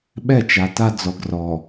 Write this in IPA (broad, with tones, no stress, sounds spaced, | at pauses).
ɓ ɛ˦˨ t͡ʃ a˨ t a˦ d͡z ɔ˨ ɡ r ɔ˨